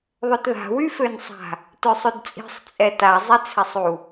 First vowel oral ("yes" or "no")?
yes